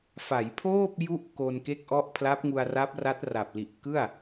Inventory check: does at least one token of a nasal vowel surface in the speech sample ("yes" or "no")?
no